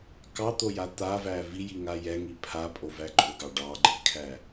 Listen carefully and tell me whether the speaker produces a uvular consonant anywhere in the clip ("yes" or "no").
no